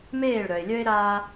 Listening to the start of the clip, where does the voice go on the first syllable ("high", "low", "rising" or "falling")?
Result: falling